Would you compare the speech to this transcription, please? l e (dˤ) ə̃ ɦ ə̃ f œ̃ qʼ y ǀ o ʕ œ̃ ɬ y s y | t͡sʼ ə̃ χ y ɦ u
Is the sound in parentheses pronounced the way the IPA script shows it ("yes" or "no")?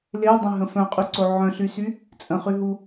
yes